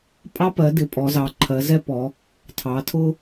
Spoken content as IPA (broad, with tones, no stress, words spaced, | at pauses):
pʼɑ˦pɜ˩˧dɪ˩˧ pʼɔ˩˧zɑ˩˧ǃʰɜ˩˧ zɛ˦pɔ˩˧ | tʰɑ˩˧tʰʊ˦